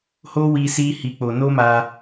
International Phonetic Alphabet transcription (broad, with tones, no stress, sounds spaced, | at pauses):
h o˦ w i˧ s i˦ h i˧ k͡p o˧ n o˦ m a˧